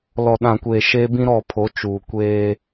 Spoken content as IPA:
l ɔ˨ ɗ ã˨ kʷ eː˨ ʃ e˦ b ĩ˦ ɾ ɔ˦˨ pʰ o˨˦ t͡ʃ uː˨ kʷ eː˦

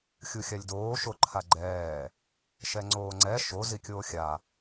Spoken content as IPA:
xʲ u xʲ a lʲ d oː ʃ o ǃʰ a ɡ͡ǃ ɛː | ʃ ɛ ŋ͡ǀ oː ŋ͡ǀ ɛ ʃ o z i kʲ oː xʲ a

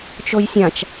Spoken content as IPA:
t͡ʃ o j sʲ ã t͡ʃ

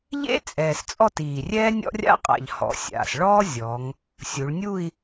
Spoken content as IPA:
ʎ ḛ˥ t͡sʼ ɛː˨˩ s t͡sʼ ɔ˥˧ t iː˨˩ rʲ ɛː˥ nʲ ɔ̰˥ rʲ a̰˥ qʼ a̰˨˩ ʎ h ɔ̰˩˧ sʲ a̰˨˩ s ɭ ɔː˥ zʲ ɔ˩˧ ŋ | sʲ u˩˧ ɭ nʲ u˥˧ i̯

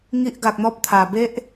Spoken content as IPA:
ŋ i˦ ʔ ɡ a˨ k̚ n̪ ɔ˦ p̚ t̪ʰ a˨˩ b e˦ ʔ

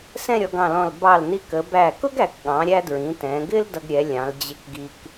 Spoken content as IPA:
s ɛ̃˥˧ ɾʲ ɔ˩˧ ɡ ɑ̃˧˩ l ɔ̃˧˩ l b ɑ˧˩ l n i˧ k ə˩˧ b æ˧˩ k ʊ˥ ɡ æ˩˧ k ɠ ɑ̃˩˧ ɾʲ æ˧ d ɹ ĩ˩˧ t ɛ̃ː˩˧ ɡ ɪː˥ l d ʌ˧ ɡ ɾʲ ɛ˩˧ lʲ ɑ̃˩˧ l d͡ʑ ɪ˧ k ɡ i˧ k

